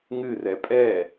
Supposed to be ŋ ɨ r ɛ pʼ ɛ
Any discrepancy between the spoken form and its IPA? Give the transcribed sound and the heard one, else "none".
none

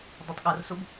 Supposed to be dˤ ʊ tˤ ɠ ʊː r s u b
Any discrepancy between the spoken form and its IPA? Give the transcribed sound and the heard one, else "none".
none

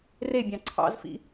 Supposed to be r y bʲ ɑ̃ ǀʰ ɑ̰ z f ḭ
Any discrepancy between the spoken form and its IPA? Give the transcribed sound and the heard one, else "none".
y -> e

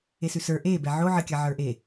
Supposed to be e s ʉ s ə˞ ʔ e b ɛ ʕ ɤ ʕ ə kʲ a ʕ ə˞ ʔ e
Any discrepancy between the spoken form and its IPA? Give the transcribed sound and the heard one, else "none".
ɤ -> o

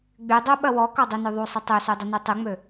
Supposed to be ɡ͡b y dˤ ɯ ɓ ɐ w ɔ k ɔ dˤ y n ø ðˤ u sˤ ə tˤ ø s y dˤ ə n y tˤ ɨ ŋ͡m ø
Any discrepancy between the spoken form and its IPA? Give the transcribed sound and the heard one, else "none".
ɯ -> u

